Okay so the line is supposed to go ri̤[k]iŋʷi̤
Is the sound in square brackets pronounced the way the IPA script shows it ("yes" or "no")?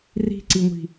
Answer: no